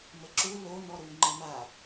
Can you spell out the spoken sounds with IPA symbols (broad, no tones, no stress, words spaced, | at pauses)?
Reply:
məǁu lo nɔɾu ŋ͡ǃəma